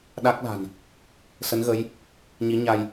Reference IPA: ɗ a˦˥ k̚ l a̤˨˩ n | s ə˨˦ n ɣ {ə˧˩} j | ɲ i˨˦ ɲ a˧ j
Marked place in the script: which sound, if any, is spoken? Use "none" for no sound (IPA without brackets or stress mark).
ə˨˦